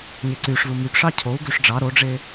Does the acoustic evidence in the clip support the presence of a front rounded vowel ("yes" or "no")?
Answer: yes